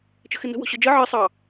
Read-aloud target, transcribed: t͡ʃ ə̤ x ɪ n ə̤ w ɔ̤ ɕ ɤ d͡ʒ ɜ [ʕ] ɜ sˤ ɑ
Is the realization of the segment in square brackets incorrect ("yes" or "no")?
no